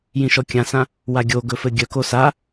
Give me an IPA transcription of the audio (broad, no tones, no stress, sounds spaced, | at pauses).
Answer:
j ĩ ʃ ɔ kʲ ã s ã | w a ɡʲ o ɡ ɵ f ɘ ɡʲ œ k o s a